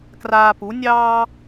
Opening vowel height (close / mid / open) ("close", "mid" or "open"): open